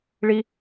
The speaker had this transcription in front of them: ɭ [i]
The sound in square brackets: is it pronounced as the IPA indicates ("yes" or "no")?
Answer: yes